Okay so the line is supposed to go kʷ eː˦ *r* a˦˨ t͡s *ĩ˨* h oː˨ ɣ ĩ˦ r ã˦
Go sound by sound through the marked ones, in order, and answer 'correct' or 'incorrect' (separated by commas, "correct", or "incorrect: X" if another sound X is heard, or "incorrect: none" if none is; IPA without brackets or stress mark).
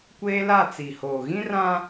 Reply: incorrect: l, incorrect: i˨